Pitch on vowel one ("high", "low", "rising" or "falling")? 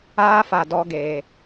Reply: high